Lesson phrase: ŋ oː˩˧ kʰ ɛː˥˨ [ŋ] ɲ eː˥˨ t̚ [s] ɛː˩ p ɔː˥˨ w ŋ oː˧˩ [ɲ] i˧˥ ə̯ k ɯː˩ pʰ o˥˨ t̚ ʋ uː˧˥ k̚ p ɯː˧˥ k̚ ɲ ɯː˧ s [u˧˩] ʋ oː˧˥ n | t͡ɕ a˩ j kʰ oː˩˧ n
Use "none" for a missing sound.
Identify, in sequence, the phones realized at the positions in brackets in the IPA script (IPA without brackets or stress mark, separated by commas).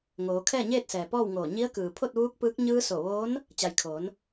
none, s, ɲ, o˧˩